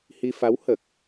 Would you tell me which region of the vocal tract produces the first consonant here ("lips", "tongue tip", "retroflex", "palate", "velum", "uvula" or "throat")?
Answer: throat